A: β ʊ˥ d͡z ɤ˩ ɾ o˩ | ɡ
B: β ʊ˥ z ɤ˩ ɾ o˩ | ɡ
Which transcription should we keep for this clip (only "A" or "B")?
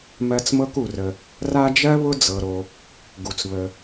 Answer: A